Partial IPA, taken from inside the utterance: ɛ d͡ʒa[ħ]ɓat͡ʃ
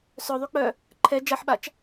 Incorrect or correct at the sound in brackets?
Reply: correct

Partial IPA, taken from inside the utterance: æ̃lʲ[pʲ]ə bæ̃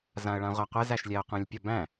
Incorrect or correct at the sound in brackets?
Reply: correct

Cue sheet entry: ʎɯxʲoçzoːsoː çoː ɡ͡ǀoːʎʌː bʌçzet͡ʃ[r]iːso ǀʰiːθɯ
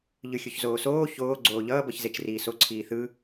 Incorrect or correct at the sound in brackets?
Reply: correct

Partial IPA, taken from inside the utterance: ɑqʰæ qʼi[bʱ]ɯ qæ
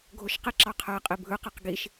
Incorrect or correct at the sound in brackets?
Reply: correct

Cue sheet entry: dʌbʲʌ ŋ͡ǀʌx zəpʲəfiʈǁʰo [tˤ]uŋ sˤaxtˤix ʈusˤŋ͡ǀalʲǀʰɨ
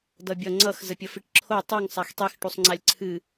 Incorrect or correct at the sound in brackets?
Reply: correct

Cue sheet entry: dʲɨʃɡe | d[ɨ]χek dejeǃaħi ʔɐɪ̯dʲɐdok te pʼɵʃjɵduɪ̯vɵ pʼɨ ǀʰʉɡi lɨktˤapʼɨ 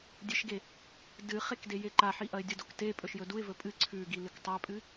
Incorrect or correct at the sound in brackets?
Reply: correct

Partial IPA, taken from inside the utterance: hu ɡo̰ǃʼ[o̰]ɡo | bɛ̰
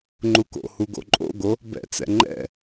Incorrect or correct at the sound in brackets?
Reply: correct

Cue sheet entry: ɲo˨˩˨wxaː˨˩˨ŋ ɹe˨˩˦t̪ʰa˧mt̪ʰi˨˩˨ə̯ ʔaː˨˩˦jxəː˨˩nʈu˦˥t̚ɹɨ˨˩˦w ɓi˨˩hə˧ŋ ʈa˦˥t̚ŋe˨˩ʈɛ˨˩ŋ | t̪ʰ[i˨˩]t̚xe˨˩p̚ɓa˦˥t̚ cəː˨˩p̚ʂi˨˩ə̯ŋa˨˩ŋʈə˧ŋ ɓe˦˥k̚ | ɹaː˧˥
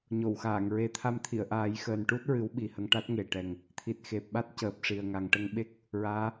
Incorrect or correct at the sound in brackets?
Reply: correct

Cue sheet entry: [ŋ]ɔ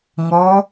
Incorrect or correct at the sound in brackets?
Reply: correct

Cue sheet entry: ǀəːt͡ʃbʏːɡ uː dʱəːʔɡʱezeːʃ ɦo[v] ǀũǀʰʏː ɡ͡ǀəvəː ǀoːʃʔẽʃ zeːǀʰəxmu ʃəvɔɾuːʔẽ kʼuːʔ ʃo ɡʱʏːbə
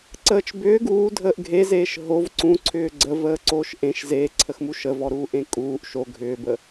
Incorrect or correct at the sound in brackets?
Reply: correct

